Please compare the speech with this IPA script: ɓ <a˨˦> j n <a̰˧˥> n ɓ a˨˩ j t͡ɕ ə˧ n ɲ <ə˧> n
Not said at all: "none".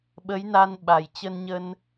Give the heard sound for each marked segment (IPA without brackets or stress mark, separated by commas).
ə˨˦, a˧, ə˧